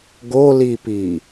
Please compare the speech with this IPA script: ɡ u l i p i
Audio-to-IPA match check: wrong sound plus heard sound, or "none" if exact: u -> o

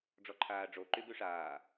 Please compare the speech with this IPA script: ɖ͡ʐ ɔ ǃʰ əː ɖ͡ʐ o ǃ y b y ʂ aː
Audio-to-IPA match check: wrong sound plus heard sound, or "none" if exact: əː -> aː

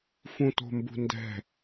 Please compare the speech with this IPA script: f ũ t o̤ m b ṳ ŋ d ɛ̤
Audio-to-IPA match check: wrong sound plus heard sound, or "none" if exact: ŋ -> n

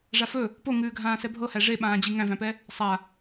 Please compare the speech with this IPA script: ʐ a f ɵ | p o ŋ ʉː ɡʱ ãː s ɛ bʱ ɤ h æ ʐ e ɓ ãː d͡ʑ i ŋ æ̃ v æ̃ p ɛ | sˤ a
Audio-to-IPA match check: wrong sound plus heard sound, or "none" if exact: none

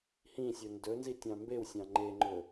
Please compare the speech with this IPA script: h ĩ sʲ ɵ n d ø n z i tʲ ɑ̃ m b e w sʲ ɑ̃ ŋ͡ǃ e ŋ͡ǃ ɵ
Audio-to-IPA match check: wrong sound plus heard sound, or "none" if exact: ø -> ɵ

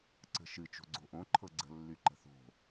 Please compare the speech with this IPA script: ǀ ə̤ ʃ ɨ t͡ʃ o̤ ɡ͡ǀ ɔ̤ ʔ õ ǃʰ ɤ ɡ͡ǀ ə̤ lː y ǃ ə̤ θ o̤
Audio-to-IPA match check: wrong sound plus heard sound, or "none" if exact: ɔ̤ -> o̤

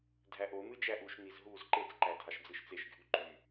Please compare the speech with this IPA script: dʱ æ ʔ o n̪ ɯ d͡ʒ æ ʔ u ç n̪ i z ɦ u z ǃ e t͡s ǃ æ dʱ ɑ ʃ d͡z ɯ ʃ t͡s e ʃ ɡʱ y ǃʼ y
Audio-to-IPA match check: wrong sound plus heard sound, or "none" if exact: ç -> ʃ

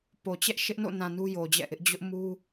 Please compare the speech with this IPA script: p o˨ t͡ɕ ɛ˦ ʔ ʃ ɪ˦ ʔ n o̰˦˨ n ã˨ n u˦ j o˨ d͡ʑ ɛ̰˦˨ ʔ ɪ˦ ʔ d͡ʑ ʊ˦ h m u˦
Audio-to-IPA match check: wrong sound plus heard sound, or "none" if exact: h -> ʔ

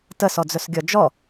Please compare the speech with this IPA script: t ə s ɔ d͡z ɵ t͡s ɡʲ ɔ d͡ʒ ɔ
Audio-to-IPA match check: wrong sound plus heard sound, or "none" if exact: t͡s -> s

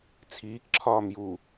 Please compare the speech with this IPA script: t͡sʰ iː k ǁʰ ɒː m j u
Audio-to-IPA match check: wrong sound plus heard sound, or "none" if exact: none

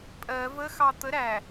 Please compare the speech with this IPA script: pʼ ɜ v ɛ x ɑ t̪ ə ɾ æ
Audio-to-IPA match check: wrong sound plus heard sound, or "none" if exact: ɛ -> ə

